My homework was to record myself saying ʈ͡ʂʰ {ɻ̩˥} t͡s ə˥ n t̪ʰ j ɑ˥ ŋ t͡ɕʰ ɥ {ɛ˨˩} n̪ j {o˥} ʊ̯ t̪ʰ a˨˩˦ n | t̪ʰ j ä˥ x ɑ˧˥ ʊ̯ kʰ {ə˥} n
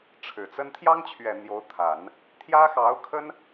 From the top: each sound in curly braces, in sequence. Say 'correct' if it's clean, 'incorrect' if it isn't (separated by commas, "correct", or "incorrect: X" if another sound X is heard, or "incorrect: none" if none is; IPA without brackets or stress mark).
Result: incorrect: ɻ̩˨˩, correct, incorrect: o˧˥, correct